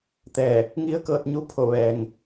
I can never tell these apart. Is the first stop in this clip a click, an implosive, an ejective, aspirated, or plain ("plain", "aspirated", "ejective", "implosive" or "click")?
plain